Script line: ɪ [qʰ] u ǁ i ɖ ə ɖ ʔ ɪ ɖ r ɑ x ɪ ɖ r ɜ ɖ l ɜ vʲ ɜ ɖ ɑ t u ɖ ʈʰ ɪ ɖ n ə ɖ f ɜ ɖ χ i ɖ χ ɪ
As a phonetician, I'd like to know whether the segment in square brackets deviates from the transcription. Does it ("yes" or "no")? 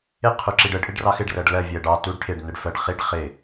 no